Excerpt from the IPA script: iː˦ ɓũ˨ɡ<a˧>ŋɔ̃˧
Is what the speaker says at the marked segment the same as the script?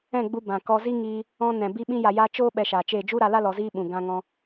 no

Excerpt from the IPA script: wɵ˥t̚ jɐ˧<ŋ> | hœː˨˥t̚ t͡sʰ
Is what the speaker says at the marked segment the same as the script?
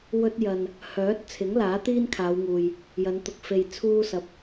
no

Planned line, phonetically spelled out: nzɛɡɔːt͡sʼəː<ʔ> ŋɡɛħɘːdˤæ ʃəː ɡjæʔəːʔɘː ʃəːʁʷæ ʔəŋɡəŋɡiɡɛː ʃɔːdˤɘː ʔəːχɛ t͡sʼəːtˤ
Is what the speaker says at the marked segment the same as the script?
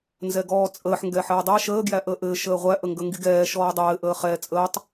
no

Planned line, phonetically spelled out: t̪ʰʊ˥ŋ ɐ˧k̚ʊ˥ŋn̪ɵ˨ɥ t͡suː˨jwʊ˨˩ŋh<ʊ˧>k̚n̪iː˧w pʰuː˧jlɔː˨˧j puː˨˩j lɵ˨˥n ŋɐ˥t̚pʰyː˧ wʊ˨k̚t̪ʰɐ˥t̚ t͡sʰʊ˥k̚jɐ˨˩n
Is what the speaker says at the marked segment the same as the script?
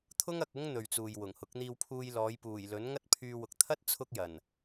no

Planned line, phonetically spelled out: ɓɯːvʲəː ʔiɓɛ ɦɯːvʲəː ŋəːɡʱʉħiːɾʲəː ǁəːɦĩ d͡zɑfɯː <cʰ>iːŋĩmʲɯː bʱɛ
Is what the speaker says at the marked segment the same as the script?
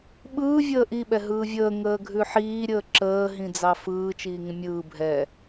no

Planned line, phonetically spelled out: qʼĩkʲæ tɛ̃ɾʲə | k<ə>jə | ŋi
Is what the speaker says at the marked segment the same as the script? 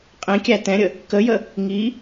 yes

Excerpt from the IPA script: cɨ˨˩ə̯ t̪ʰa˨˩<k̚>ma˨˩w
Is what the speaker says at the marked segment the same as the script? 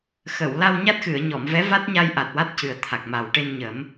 yes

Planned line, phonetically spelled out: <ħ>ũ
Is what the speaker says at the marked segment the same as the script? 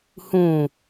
no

